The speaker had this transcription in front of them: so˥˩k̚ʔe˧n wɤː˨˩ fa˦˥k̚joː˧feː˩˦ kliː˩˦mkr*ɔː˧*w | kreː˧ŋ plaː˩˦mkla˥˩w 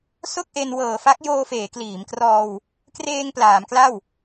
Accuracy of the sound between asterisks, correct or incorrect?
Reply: correct